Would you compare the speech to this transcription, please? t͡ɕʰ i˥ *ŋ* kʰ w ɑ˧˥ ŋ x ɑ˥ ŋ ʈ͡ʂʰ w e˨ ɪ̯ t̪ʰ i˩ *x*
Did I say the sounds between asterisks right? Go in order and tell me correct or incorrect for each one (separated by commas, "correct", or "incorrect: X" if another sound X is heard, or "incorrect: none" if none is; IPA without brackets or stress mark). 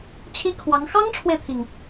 incorrect: none, incorrect: ŋ